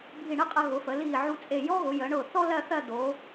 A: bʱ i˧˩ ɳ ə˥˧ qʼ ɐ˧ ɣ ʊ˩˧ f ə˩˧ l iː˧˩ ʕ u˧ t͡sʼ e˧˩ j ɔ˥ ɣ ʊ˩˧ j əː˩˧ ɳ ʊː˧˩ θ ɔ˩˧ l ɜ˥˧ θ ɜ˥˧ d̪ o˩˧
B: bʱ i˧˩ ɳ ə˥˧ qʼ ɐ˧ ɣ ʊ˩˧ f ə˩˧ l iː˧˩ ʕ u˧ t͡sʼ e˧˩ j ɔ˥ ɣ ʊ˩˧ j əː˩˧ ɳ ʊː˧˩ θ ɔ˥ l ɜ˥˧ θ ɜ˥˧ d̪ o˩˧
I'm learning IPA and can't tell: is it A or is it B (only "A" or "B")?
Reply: B